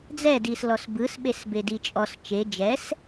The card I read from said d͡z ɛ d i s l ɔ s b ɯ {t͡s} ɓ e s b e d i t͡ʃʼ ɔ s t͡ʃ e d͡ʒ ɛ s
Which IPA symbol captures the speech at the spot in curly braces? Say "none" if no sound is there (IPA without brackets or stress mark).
s